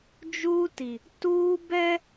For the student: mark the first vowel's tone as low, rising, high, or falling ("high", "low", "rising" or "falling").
high